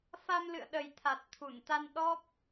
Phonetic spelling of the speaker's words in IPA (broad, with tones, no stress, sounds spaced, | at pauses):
f a˧ m l ɨ̰˧˨ ə̯ ɗ ə˨˩ j t̪ʰ a˨˩ t̚ t̪ʰ u˧˩ n t̪ a˧ n ɗ ɔ˦˥ p̚